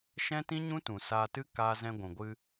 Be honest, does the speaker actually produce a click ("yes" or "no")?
no